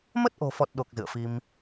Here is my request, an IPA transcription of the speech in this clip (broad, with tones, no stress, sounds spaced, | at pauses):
m ə˦˥ t̚ ʔ o̤˨˩ f ɔ˨˩ t̚ ɗ o˨˩ k̚ z ɨ̰˧˨ ə̯ f i˧ m